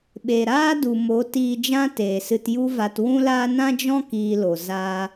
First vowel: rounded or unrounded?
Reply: unrounded